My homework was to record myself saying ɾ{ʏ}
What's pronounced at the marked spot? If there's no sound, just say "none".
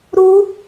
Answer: u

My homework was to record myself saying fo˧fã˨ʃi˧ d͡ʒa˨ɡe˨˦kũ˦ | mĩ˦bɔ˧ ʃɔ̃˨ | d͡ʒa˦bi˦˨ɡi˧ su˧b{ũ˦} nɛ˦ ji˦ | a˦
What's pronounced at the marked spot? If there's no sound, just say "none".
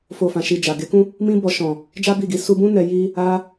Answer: ũ˦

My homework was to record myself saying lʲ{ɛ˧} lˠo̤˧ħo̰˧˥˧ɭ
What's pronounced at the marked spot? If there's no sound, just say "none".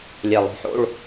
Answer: ɛ˨˩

